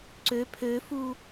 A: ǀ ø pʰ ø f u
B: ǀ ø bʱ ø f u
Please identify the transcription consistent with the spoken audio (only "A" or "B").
A